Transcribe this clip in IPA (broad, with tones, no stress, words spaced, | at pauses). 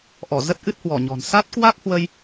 ʔɔ˧˩ zə˦˥t̚ʔɨ˦˥t̚hwɔ˧˩ ɲɔ̤˨˩n sa˦˥t̚ kwa˦˥k̚hwə˧j